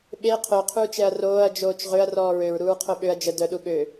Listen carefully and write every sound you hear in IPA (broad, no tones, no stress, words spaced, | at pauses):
ɓe qʰœqʰuːt͡ʃɛɐ̯ roːɐ̯d͡ʒoːt͡ʃ ʁøɐ̯rɔː ɹøɹɾuːɹqʰo ɓøɐ̯ d͡ʒə dœɗu ɠø